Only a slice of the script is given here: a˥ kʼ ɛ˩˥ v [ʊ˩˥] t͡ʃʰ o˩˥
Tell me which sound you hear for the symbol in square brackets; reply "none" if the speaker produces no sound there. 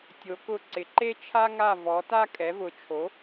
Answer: ʊ˩˥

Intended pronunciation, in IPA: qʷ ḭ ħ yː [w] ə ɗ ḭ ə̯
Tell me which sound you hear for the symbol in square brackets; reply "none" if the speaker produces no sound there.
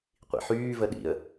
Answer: v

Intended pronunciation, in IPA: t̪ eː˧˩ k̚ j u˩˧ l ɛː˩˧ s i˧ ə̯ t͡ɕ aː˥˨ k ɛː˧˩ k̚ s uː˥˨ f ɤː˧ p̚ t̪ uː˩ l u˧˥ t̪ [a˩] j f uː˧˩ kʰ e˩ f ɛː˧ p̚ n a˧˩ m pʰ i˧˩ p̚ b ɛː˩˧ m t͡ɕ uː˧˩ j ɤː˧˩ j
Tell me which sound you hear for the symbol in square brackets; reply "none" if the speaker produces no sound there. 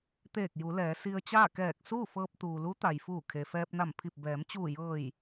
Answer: a˩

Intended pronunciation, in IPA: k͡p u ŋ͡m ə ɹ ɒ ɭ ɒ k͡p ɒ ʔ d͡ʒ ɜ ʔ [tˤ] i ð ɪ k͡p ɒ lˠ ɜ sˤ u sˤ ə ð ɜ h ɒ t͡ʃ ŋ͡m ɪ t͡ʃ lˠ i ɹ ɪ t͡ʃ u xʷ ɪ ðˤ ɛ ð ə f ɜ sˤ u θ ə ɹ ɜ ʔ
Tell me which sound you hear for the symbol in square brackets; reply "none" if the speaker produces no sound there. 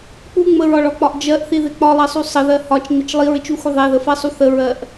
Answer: θ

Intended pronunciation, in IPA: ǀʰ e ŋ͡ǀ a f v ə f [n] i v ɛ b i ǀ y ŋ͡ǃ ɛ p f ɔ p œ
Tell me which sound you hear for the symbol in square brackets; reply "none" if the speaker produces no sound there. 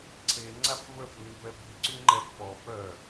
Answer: n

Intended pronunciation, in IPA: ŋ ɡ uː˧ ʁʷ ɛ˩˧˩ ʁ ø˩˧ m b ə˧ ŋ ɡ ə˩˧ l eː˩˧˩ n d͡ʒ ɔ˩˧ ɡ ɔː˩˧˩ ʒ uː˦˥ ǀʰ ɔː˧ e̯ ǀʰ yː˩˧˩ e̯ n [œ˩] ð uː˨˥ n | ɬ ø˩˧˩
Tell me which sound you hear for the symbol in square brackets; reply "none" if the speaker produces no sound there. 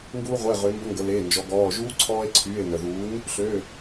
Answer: œ˩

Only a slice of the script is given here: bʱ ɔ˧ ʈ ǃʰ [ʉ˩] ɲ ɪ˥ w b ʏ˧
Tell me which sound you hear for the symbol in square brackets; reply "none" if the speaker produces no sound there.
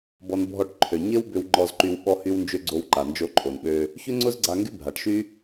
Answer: ø˩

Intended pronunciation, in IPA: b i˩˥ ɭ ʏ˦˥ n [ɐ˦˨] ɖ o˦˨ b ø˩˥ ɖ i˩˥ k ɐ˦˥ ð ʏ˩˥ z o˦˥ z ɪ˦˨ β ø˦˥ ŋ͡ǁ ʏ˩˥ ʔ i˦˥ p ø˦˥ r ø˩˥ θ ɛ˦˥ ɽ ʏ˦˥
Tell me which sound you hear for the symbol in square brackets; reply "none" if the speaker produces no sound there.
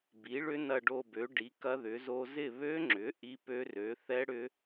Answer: ɐ˦˨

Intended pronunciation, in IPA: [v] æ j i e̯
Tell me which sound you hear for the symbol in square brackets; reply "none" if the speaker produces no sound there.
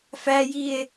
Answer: f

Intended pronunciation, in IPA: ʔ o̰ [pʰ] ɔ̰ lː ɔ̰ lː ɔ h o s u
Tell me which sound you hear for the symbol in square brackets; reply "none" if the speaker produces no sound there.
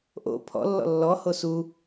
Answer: pʰ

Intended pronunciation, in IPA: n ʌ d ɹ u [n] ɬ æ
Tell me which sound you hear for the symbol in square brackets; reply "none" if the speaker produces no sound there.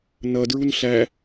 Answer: n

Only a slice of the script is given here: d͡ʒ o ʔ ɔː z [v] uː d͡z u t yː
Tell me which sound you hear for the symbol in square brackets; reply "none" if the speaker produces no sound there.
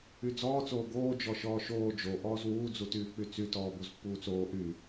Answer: w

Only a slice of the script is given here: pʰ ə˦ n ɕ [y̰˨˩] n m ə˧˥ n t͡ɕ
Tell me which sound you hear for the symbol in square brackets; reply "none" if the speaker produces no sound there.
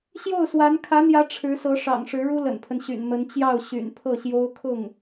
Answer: y̰˨˩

